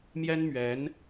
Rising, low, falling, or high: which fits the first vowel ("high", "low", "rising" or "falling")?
high